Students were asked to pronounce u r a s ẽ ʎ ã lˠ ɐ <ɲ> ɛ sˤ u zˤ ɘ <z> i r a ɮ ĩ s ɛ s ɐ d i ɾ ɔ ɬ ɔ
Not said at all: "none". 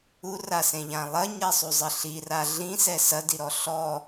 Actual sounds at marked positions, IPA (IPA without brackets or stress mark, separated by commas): ɲ, ɬ